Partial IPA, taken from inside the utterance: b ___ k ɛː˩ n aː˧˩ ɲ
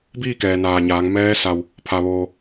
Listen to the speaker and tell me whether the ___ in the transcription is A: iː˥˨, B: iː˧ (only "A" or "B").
A